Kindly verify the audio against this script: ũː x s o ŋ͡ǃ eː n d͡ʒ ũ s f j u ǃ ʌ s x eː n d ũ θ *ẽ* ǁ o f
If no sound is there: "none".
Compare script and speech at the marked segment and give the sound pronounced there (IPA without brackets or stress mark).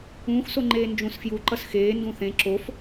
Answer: ẽ